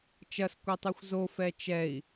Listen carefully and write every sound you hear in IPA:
t͡ʃ ɐ s kʷ ɛ tˤ ʉ xʷ z o f ɛ t͡ʃ ɛ i̯

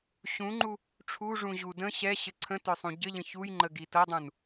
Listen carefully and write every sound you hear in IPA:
ɕ ũ ŋ͡ǃ u | ʈ͡ʂʰ u ʐ ũ ʑ u d ə̃ ɕ ɛ ɕ ɘ ǀʰ ə̃ t œ sˤ ũ ɟ ɘ ʎ ə̃ ç u j ŋ͡ǃ ə ɡ i t ɤ dˤ ũ n

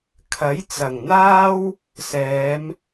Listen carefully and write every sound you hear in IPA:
kʰ ɐ˨˥ j t͡s ɐ˨˩ ŋ n̪ aː˥ w | s ɛː˨˧ m

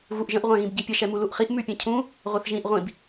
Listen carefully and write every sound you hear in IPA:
ɣ u ʔ ʒ ə̃ ʔ ʁʷ ã ɣ ĩ b ɟ i pʲ ə ʃ ɛ m u l u ʔ χ i ʔ m ʉ pʲ ɛ̃ cʰ ũ | ʁʷ a θ ʒ ĩ ʔ ʁʷ ĩ b

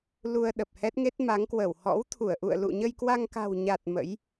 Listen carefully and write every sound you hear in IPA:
l u˧ ə̯ ɗ ə˨˩ p̚ h ɛ˦˥ t̚ ŋ e˦˥ t̚ m a˨˦ ŋ k w ə˧˩ w h ɔ̰˧˥ w t̪ʰ u˧˩ ə̯ ʔ ṵ˧˨ ə̯ l ṵ˧˨ ɲ ə˧ j k w a˧ ŋ k a̤˨˩ w ɲ a˨˩ t̚ m ə̰˧˥ j

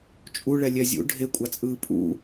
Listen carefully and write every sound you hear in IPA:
t͡ʃʼ u ɭ ɛ lʲ ɛ zʲ ṵ ɖʱ e kʷʼ a t͡sʼ ɯː pʼ ṵ

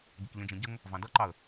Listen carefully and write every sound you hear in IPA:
ɟ ɪ k ʎ ə̃ d͡ʒ ɛ̃ ɟ ə ŋ | v ɑ̃ d ʌ ǃ ɑ ə̯

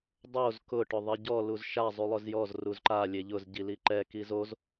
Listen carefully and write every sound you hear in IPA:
dˤ o z k ʊ ʈ ʊ ðˤ i ɟ ɔ l u z ʃ a zˤ u lˠ ʊ z j ɔ z r u z ǃ a lʲ e ʎ ʊ z ɟ i l i ǃ ɛ k i z o z

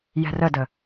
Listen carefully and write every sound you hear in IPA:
j ɛ̤ r ə d ə

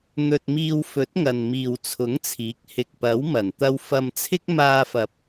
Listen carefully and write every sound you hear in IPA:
n̪ ɵ˧ t̚ m iː˧ w f ɵ˨˥ t̚ ŋ ɐ˨ n m iː˨ w t͡sʰ ʊ˨˥ ŋ t͡sʰ iː˨˥ k̚ h ɪ˨ k̚ p ɐ˨˥ w m ɐ˨˩ n t̪ ɐ˧ w f ɐ˧ m t͡sʰ ɪ˥ k̚ m aː˧ f ɐ˨ p̚

